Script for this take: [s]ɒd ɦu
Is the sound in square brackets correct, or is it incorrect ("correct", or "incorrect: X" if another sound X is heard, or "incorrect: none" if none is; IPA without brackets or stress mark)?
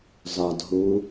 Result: incorrect: z